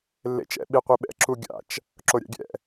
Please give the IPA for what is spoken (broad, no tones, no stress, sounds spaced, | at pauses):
lː ḛ t͡ʃ ɛ̰ ɓ i qʷ i ɓ ɛ̰ ǁ u ɡʲ a̰ t͡ʃ | ǁ o ɾʲ a̰ ɡʲ ɛ̰